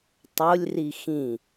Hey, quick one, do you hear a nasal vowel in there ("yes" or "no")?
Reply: yes